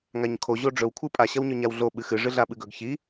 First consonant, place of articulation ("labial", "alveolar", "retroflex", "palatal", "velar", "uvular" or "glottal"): velar